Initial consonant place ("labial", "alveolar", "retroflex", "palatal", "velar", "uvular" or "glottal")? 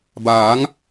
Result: labial